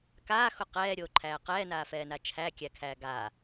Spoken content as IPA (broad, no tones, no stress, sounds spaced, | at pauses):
k aː x o q ɛː ɾʲ oː ǃʰ æː q ɛː n aː f ɛː n a t͡ʃʰ æ kʲ æ kʰ æː ɡ a